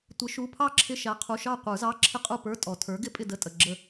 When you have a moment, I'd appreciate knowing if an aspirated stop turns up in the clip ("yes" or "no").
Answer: yes